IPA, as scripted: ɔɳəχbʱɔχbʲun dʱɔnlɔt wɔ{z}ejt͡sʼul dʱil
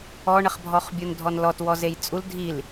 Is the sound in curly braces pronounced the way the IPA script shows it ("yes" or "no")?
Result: yes